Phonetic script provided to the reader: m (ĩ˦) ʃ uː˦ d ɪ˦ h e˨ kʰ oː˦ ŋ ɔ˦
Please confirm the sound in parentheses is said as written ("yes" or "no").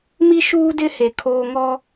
no